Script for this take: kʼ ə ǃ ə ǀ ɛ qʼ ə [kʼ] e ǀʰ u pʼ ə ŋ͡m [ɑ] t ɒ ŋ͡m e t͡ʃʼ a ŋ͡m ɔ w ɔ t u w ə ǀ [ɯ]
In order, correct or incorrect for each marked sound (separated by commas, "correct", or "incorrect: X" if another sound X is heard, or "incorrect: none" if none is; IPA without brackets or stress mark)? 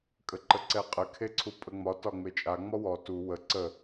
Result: incorrect: kʰ, incorrect: ɒ, incorrect: ə